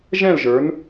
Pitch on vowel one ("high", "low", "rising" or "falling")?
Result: falling